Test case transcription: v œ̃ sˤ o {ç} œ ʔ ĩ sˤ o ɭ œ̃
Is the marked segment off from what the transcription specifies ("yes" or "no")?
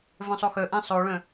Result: yes